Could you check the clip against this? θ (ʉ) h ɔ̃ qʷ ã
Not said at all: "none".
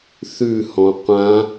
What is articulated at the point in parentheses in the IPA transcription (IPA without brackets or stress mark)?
ʉ